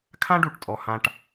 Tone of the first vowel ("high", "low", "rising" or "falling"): high